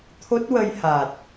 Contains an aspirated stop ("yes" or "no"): yes